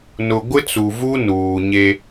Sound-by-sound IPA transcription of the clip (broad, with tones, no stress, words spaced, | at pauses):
nʊ˨ɡʷɪ˦t͡su˨vu˦ nuː˨ɲe˦